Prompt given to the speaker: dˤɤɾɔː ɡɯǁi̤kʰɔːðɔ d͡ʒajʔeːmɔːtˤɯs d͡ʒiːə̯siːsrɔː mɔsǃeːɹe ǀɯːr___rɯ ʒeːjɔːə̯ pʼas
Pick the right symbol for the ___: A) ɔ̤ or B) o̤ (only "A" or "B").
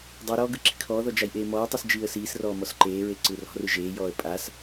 A